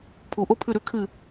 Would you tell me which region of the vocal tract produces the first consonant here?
lips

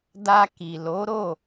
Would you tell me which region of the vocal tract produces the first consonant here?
tongue tip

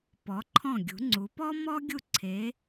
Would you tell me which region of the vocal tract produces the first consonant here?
lips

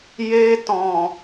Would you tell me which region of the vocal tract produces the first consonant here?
palate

